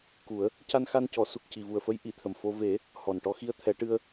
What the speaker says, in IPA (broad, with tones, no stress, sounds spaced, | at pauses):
k u˨˩˦ ə̯ | c a˧ n x a˧ n c ɔ˨˩˦ s u˨˩ k̚ c i˨˩ v u˨˩ ə̯ f ə˧˥ j ʔ i˨˩˨ t̪ʰ ə˨˩ m f o˧ v e˨˩˦ | h ɔ˨˩ n ʈ ɔ˧ x i˧ ə̯ t̪ʰ ɛ˨˩˦ ʈ ɨ˧ ə̯